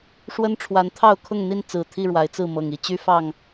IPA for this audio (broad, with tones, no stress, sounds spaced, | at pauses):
ʂ w ə˦ n ʈ͡ʂʰ w a˨˦ n t̪ʰ ɑ˥˨ ʊ̯ kʰ ʊ˥˨ ŋ n̪ i˥˨ n t͡s ɹ̩˨˩ t̪ʰ i˥˨ ɻ w a˨˦ ɪ̯ t͡s ɹ̩˥˨ m ɤ˨˩ ŋ i˦ t͡ɕ y˦ f ɑ˥˨ ŋ